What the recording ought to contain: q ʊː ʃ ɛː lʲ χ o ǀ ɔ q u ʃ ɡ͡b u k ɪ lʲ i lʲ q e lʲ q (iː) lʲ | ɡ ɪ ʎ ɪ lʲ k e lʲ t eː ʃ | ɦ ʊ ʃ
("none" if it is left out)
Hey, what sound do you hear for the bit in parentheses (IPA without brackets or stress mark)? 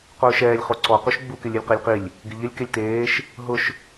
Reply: i